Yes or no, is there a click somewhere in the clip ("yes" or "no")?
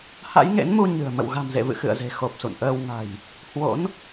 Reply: no